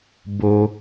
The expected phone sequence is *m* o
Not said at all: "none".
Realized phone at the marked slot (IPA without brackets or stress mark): b